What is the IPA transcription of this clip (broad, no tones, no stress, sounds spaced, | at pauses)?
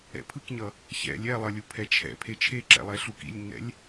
ɛ̰ pʰ ɯ k ɲ ʌ | ç ɛ̰ lʲ ɛ lˠ ʌ lʲ u pʰ ɛ t͡ʃʰ ɛ̰ pʰ e t͡ʃʰ e ǁ ɛ̰ lˠ ɛ ɬ u k ḭ lʲ nː ɛ̰ lʲ